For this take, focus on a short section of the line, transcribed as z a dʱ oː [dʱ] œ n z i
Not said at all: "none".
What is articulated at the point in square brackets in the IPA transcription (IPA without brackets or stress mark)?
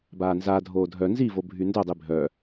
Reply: dʱ